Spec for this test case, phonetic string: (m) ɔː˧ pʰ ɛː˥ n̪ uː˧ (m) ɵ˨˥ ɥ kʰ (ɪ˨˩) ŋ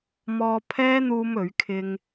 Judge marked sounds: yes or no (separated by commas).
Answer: yes, yes, no